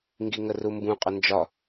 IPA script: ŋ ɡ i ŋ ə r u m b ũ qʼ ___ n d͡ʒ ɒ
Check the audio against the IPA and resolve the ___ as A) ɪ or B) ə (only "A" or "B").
B